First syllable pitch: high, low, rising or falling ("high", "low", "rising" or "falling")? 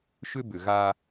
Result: high